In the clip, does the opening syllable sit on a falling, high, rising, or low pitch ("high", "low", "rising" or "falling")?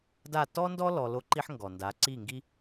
falling